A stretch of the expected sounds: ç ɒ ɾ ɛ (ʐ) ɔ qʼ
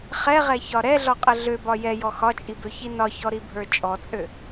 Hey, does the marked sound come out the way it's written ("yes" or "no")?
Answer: no